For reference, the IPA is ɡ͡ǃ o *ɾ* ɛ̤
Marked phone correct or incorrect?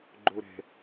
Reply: correct